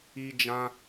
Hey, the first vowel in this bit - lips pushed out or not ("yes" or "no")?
no